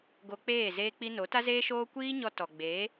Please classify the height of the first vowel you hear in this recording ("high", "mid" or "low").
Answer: mid